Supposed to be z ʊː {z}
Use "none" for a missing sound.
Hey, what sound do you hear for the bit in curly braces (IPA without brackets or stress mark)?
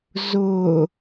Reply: none